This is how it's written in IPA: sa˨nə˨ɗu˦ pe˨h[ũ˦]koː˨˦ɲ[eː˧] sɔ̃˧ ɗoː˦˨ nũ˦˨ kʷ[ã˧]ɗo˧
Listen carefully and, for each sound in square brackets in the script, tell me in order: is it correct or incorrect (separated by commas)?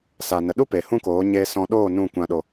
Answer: correct, correct, correct